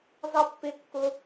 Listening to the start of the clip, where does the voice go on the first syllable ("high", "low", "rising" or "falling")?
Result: high